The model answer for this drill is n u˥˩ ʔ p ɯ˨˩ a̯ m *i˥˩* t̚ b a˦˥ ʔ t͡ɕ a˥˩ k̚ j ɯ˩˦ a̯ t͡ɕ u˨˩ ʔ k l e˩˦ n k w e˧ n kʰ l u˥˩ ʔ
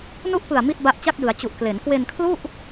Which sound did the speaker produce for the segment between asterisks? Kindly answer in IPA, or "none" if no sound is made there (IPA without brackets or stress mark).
i˥˩